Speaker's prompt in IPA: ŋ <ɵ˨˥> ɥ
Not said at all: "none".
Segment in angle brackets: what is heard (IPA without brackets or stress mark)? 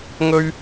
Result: ɵ˥